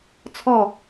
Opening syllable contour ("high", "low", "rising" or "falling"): falling